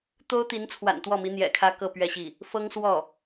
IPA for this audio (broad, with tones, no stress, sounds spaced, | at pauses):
t̪ o˥ ʊ̯ t̪ i˧˥ n t͡sʰ w a̰˨˩ n t̪ w ɔ˥˩ m i˧˥ n̪ j ɛ̰˨˩ kʰ ä˥ k ɤ˥˧ p ɥ ɛ˥˧ ɕ i˥˩ | f ɤ˥ ŋ s w ɔ˥˩